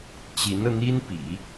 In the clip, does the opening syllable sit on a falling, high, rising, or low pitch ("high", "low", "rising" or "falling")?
rising